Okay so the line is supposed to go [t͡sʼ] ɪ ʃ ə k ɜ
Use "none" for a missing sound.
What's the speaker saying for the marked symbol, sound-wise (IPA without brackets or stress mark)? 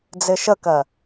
d͡z